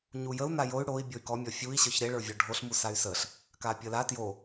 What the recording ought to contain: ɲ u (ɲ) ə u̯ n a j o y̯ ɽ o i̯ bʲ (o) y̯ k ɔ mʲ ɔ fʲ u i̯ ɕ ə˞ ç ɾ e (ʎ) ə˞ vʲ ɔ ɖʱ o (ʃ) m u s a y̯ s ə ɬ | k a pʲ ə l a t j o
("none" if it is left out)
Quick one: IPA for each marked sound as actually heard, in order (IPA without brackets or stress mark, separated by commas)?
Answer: j, o, ɭ, ɬ